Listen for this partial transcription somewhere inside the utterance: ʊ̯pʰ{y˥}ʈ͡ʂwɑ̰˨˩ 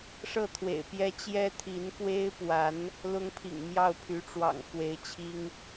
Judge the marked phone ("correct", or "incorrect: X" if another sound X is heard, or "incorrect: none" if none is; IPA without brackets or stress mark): incorrect: y˧˥